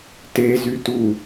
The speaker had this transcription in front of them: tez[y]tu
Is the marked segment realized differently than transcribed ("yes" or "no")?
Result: no